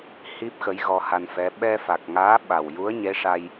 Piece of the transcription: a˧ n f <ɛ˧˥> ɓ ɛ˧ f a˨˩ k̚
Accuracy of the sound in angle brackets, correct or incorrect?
correct